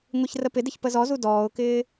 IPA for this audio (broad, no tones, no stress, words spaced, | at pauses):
ŋʷiçrəpɪdɪç pəzɔzu dɔːʊ̯kɪː